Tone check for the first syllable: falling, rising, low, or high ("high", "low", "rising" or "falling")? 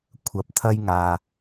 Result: low